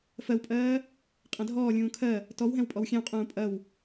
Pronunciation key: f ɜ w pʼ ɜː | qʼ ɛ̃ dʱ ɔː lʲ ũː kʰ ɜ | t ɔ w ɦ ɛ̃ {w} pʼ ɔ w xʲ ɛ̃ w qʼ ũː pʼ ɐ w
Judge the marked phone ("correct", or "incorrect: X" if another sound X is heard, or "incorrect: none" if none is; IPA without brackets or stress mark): correct